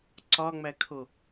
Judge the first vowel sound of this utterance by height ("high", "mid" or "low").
low